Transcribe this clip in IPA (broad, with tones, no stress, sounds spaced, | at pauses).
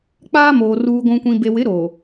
k͡p aː˦ m oː˨ r uː˨ ɡʷ ũ˨ kʷ ĩ˨ b e˨ w ɪ˨˦ ɾ o˨